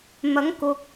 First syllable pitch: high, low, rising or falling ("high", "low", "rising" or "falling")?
rising